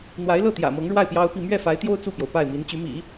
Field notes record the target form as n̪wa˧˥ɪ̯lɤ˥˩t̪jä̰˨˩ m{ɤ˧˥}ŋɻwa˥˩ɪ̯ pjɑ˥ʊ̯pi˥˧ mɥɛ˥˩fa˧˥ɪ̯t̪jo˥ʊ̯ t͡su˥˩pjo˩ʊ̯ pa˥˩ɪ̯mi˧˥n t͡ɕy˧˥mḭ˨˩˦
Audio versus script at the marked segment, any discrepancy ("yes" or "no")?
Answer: no